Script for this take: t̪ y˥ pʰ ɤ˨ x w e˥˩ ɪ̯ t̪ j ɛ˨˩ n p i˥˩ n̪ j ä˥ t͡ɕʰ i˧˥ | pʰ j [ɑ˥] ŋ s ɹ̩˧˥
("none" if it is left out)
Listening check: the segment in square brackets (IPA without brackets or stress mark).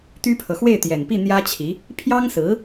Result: ɑ˥